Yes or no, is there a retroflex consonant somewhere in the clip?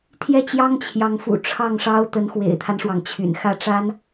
yes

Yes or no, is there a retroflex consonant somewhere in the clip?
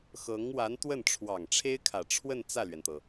yes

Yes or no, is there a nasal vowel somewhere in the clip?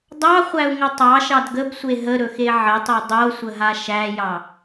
no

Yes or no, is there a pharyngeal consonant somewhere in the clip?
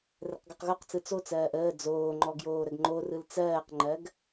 no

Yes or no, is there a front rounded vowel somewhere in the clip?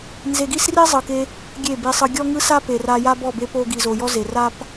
no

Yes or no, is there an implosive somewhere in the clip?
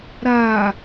no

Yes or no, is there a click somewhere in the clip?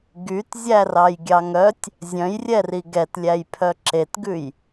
yes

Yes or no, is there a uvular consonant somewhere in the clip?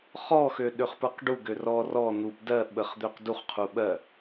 yes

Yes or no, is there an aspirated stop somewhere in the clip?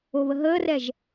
no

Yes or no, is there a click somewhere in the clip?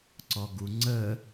yes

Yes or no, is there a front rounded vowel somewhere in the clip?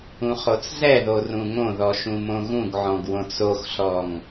no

